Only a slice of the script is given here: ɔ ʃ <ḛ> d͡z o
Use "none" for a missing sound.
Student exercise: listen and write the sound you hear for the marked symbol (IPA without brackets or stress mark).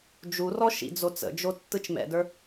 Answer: ḭ